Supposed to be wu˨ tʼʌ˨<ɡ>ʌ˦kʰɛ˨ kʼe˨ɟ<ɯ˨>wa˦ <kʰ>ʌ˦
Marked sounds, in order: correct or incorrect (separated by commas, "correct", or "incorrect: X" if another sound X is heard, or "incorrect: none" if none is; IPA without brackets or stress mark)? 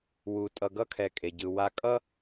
correct, correct, incorrect: kʼ